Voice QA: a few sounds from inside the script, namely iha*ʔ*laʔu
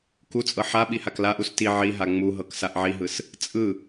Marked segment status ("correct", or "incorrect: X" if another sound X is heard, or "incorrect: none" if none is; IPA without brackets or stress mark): incorrect: k